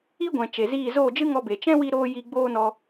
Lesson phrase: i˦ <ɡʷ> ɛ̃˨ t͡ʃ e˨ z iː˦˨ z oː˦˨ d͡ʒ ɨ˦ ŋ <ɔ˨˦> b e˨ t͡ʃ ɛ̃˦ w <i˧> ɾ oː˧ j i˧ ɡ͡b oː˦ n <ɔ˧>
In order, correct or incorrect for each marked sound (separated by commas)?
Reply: correct, incorrect, correct, correct